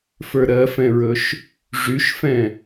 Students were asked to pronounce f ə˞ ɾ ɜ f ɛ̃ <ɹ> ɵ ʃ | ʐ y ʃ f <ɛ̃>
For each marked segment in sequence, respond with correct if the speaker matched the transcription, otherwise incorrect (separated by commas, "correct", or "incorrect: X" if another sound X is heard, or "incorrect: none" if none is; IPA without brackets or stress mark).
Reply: correct, correct